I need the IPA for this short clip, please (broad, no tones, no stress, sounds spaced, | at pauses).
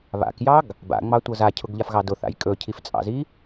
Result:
β a̰ k j ɑ ɡ | b a̰ ŋ͡m ɑ tʷ ɤ z a cʰ ʊ ɡ ʎ a f ɣ ɑ d ʊ θ a̰ j kʼ ɵ cʰ i f t͡sʼ ɑ̰ z i